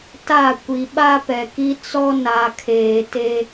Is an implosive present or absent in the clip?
present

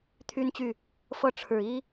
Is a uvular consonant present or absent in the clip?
absent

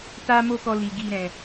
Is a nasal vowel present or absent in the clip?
present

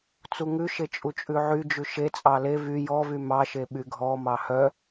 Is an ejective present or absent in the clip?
present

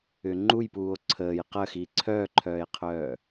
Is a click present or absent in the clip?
present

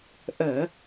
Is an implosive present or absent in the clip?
absent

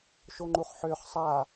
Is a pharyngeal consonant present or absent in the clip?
present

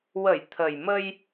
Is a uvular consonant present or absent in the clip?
absent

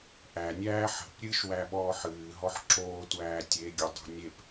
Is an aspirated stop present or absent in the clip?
absent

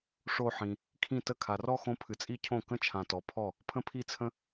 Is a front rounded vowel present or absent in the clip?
absent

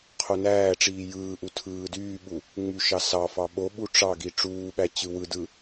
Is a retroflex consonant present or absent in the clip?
present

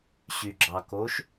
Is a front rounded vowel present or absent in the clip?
present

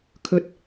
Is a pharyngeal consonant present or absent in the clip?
absent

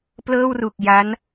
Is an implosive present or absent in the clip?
absent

